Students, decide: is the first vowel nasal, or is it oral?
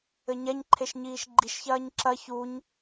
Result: oral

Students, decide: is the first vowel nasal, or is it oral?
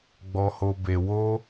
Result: oral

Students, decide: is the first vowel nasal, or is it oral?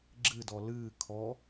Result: oral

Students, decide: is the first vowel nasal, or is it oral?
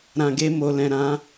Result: nasal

